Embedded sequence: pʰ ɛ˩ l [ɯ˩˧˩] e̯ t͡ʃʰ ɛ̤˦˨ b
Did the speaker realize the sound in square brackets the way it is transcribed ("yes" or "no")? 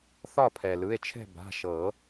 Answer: yes